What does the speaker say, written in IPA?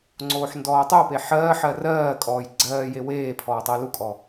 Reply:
ŋ͡ǀoːħndɔːtˤope ħɜːħɜ rɜː kʼɔːjɡ͡ǀɜːje weːpʰɔː tˤɜlukʼɔ

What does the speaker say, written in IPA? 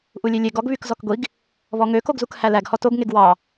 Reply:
ʔulʲelʲeɡɔɡ βykzɔkɡʷiɡ | βɔŋøkoɡzuk hælæɡ hɔtoɡ ŋeɡwɑ

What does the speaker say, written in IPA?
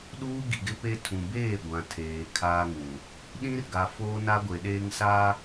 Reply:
ɗuː˦ɡi˨ɡɪ˦pe˦ tʰũ˨beː˦˨ɡʷã˨tʰeː˨ kʰaː˦ŋũ˨ | ɗĩ˦rɡa˨ foː˦na˦ɡʷe˨ɗeː˦ŋ sa˦

